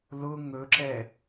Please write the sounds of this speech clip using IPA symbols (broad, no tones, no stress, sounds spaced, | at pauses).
l ʊ ŋ ɵ ǁ ɛ